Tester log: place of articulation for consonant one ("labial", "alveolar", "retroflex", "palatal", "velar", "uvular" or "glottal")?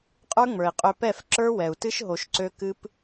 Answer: uvular